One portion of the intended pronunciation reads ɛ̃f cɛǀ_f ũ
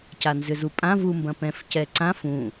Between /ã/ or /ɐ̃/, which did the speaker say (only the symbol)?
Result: ã